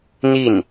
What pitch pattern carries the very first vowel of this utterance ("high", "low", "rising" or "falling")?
falling